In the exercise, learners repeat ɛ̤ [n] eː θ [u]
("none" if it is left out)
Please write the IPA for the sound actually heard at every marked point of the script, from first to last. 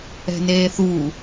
n, u

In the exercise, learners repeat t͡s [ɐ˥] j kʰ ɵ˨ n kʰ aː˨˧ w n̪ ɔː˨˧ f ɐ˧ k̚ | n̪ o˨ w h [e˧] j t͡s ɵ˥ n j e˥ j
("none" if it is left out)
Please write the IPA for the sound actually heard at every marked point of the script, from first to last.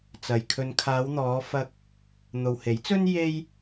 ɐ˨, e˨˥

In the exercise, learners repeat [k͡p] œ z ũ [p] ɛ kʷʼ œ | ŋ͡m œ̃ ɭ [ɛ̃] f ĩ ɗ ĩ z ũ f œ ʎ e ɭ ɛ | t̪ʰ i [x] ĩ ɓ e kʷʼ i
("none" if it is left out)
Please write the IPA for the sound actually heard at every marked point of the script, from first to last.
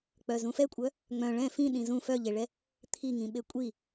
k͡p, f, ɛ̃, ŋ

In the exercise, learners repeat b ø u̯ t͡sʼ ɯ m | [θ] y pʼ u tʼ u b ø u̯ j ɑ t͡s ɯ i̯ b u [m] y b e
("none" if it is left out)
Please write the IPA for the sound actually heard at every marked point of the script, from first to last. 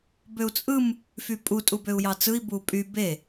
f, pʼ

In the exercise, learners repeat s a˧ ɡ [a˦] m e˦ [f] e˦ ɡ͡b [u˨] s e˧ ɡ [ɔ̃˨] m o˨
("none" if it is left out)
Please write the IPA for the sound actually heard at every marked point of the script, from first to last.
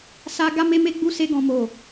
a˦, m, u˦, ɔ̃˨

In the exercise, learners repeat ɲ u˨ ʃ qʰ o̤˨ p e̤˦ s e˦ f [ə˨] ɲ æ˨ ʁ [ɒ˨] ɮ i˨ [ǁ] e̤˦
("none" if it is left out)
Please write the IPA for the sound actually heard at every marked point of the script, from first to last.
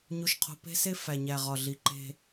æ˨, ɒ˨, ǃ

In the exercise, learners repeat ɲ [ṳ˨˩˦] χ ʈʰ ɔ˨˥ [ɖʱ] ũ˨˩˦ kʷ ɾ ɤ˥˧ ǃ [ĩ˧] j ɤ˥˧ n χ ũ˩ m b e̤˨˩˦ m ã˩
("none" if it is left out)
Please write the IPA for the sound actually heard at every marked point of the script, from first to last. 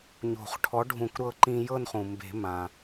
o̤˨˩˦, ɖʱ, ĩ˧

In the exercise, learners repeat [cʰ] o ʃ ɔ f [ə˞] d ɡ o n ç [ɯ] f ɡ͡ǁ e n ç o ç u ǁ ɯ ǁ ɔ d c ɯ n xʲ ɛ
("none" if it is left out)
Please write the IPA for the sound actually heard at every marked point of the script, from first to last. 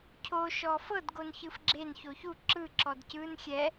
cʰ, ɤ, ɯ

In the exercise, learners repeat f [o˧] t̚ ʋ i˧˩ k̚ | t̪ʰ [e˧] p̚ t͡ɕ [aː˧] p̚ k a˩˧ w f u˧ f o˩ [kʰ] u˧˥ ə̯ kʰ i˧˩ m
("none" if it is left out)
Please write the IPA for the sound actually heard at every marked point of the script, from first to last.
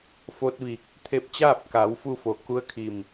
o˧, e˧, aː˥˨, k

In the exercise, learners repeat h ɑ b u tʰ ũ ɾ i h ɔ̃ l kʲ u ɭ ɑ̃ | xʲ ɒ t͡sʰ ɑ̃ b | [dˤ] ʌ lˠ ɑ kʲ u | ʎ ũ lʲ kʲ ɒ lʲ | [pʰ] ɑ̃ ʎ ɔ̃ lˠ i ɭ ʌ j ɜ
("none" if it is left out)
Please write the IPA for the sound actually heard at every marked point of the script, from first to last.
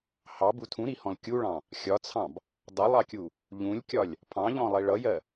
dˤ, pʰ

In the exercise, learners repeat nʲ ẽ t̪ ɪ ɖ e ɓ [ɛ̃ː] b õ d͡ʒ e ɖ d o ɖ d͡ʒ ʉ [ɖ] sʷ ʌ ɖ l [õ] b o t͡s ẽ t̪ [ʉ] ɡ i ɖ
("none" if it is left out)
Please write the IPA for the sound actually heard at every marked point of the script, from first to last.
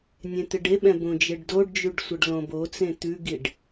ɛ̃, ɖ, õ, ʉ

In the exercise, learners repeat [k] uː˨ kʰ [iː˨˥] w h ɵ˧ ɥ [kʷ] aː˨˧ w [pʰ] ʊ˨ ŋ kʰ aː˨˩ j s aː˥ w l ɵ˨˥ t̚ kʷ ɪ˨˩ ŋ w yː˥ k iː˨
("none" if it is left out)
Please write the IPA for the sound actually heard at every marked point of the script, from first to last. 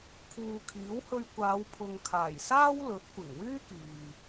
kʰ, iː˨˥, kʷ, pʰ

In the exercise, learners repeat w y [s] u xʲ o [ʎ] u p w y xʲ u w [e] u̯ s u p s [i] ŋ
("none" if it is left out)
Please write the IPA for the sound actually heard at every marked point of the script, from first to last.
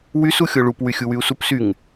s, ɭ, y, y

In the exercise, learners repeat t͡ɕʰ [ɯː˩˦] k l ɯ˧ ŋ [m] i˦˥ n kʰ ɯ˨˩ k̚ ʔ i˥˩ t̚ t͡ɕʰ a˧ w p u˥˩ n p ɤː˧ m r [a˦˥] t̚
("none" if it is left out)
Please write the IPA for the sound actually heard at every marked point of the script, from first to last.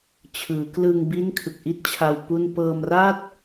ɯː˩˦, b, a˥˩

